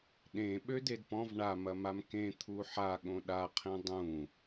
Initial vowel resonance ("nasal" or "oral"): nasal